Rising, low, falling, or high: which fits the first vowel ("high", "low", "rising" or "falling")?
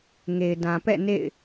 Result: low